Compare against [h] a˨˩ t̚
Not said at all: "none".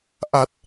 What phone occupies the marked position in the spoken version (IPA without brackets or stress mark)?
ʔ